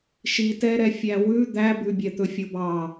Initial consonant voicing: voiceless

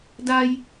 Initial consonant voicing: voiced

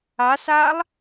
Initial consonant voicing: voiceless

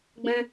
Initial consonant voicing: voiced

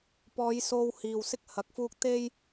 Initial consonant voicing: voiceless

